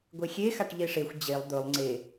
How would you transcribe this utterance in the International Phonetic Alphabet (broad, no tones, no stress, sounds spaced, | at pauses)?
ɡʷ e xʲ e x a ʈ ʎ e ʂ e xʷ d͡ʑ e lˠ d̪ ɵ lˠ ŋ͡ǀ e